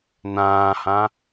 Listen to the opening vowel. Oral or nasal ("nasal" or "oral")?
nasal